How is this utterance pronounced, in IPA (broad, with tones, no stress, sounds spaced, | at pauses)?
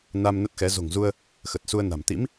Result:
n a˧ m n ə˦˥ t̚ x ɛ˨˦ z o̤˨˩ ŋ z u˧ ə̯ | x ə˨˩ t̚ s u˧ ə̯ n a̤˨˩ m t̪ ḭ˧˥ m